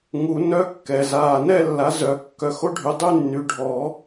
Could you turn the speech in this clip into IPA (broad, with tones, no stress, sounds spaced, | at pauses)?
ŋ u˨˩˦ n œ˧˥˧ kː ɛ˨˩ z aː˨˩ n ɛ˥˧ lː a˨˦ z œ˨˩˦ kː œ˨˦ x o˦˥ ɖʱ y˨˦ dˤ y˥˧ nː y˨˦ ɖʱ ɔ˨˩˦